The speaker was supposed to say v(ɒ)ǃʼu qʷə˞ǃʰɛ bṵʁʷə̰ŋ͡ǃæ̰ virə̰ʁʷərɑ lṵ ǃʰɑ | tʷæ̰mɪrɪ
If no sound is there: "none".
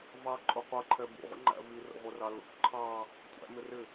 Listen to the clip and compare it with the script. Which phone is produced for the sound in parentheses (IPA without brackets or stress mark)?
ɑ